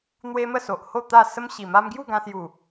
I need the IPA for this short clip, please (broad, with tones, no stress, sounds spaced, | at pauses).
n̪ w e˦ m ə˥˧ s o˨ ʔ h o˥˧ t̪ a˥˧ s ə˦ m ɕ i˨˩ m a˦ m ɡ j u˥˧ ɡ ã˧ s j u˨˩